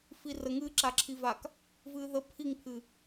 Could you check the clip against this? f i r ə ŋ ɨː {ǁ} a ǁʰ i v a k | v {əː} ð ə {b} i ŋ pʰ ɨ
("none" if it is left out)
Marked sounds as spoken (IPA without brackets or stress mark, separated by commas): ǁ, ɨː, pʰ